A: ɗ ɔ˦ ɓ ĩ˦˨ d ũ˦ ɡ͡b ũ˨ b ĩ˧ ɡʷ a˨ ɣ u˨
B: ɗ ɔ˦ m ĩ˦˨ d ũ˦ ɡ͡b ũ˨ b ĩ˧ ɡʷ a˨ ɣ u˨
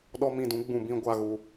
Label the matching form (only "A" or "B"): B